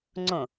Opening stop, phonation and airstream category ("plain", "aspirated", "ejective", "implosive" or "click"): click